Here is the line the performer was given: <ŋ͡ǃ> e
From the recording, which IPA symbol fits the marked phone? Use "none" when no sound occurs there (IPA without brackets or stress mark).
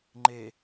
ŋ͡ǃ